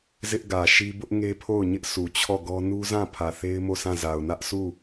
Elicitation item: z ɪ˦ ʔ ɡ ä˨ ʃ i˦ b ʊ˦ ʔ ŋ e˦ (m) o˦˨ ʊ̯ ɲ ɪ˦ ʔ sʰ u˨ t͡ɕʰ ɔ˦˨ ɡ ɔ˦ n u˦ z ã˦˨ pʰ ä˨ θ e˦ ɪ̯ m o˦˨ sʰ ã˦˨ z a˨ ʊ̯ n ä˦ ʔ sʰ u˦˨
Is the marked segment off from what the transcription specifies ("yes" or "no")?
yes